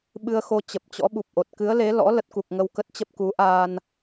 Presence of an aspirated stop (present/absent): absent